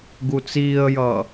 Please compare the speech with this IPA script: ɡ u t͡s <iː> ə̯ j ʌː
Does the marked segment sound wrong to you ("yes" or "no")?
no